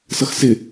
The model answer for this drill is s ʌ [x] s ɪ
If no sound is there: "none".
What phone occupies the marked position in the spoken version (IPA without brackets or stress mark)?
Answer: x